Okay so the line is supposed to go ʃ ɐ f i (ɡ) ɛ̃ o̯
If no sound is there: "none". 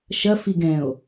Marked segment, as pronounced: ɡ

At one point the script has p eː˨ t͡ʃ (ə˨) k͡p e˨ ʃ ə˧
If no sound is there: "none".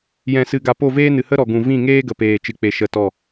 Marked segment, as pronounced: ɨ˨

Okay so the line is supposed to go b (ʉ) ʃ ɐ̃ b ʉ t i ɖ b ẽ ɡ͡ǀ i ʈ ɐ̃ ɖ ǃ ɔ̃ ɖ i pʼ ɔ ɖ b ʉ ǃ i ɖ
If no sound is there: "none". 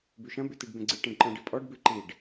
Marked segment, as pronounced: ʉ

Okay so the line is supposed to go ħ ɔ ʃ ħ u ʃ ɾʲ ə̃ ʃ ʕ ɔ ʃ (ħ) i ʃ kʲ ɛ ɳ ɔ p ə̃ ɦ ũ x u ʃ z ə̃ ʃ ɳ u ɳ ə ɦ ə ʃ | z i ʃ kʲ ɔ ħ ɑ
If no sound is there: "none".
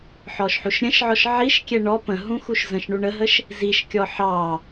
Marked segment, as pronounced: ʕ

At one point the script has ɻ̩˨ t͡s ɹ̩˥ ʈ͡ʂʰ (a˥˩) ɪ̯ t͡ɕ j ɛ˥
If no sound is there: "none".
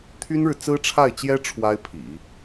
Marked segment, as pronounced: a˥˩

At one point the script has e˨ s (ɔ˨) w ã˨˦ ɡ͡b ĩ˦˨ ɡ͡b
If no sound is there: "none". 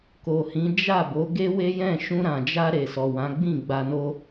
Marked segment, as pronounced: ɔ˨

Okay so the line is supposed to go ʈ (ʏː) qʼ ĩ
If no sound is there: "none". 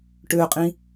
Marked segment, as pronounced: ʏː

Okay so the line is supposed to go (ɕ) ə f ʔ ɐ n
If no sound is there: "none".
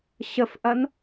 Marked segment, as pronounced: ɕ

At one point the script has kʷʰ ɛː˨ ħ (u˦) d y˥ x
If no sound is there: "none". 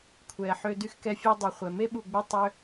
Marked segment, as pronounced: ø˦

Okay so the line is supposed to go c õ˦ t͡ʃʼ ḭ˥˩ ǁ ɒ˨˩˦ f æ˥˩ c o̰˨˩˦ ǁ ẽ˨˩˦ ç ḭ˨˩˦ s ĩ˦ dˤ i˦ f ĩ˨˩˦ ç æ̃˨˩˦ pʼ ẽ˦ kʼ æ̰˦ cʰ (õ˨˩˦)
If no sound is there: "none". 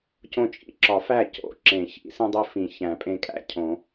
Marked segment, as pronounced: õ˨˩˦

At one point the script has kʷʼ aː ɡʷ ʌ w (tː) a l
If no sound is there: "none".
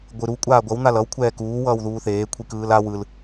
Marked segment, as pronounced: n̪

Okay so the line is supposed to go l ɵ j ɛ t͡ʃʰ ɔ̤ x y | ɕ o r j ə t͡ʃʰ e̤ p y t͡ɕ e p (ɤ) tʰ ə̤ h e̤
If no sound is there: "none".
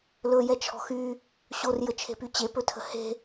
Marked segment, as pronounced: ɵ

